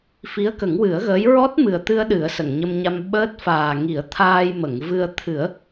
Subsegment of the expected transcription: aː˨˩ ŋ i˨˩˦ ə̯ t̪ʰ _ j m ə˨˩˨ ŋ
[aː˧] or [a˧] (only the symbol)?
aː˧